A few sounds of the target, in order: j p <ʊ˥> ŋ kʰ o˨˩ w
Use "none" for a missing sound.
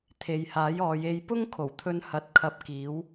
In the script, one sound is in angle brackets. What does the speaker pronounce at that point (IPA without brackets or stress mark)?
ʊ˥